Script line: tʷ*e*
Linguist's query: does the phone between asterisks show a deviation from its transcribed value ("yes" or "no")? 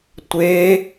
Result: no